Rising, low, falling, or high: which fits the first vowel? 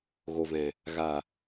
low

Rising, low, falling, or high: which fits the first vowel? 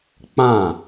falling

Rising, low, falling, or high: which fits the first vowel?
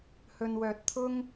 low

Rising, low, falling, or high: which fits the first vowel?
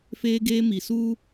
high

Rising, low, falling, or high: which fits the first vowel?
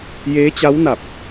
rising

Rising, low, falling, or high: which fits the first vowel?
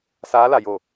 rising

